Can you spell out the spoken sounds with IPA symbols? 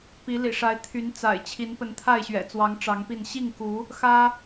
p i˨˦ l ḭ˨˩ ʂ a˨˦ ɪ̯ t̪ʰ y˨˦ n t͡s a̰˨˩ ɪ̯ t͡ɕʰ i˨˦ n p ə˨˦ n t̪ʰ a˥˨ ɪ̯ ɕ ɥ ɛ̰˨˩ t͡s w ɑ˨˦ ŋ ʈ͡ʂ ɑ˨˦ ŋ p i˥˨ n ɕ i˥˨ ŋ k u˨˦ | x ä˦

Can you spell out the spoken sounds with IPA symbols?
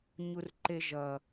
ɲ u r ǃ e ʒ ʌ

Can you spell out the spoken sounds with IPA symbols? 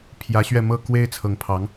pʰ j ä˧˥ ɕ ɥ ɛ˥˧ m ɤ˥˩ k w e˥ ɪ̯ t͡sʰ ɤ˧˥ ŋ pʰ ɑ˧˥ ŋ

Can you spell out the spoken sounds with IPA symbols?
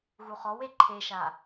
ɣ u χ ɔ w e ǃʰ e ʃ a

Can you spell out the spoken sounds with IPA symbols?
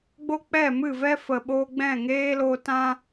ɡ͡b o˦ k͡p ɛ˦˨ m ɨ˦˨ v ɛ˦ f ə˨ ɓ o˧ ɡ͡b ɛ̃˦˨ ŋ eː˦ l o˧ t ã˦

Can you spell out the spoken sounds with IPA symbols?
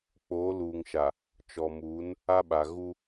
k͡p oː˨˦ l uː˨ ŋ ʃ a˨ | t͡ʃ ɔ˨ m uː˨˦ n | a˦ ɓ a˨ ɣ u˦

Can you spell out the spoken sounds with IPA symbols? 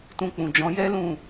t ũ˧ k͡p ũ˨ d͡ʒ ɔ̃˨˦ j ɛ˦ l ũ˦˨

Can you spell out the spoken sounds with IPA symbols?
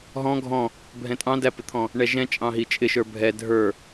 ɦ ɔ̃ ɡʱ ɔ̃ | bʱ ɛ̃ tʼ ɑ̃ d æ p ɪ t̪ʰ ɔ̃ | ɳ ɛ ʒ ɛ̃ t͡ʃʼ ɑ̃ ɦ i t͡ʃʼ ɪ ʃ ə˞ bʱ ɛ dʱ ə˞

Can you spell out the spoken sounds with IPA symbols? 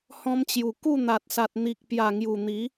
h ɔ̃˧ m t͡ɕ j u˨˩ k u˥˧ n̪ a˨ t̚ s a˨ t̚ n̪ i˨ k̚ p j a˨˩ ŋ j u˨˩ n̪ i˨˦

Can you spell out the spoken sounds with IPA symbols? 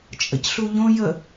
t͡ʃʼ ə̰ c ɬ u ʎ õ j ə

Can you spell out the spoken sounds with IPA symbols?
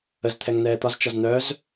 ə z t̪ʰ ɛ ŋ n̪ ɛː t̪ ɒ z t͡ʃ ɒ z n̪ œ z

